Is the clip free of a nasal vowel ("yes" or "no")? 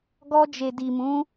no